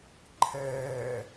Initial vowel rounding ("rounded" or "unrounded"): unrounded